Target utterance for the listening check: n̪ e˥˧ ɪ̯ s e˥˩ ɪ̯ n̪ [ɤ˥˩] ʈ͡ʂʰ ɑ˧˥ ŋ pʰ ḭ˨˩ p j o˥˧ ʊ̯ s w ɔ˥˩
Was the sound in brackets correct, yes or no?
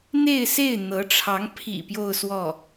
no